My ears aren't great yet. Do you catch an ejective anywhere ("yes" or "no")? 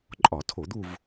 yes